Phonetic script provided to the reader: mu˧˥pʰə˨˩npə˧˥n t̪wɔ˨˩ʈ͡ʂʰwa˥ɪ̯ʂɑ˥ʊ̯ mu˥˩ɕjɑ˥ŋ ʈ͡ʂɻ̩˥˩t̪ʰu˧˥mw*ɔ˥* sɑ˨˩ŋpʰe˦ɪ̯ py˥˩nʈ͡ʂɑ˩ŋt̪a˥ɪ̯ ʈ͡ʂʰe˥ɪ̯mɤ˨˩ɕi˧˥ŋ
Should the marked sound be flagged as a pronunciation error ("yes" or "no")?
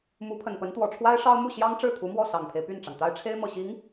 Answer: yes